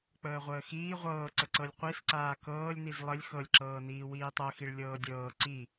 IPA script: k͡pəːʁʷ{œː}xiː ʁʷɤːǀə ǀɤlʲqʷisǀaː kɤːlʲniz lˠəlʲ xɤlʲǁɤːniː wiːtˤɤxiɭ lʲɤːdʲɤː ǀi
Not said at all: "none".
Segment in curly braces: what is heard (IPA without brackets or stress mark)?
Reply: əː